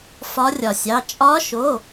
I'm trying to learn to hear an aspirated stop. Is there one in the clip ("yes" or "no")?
no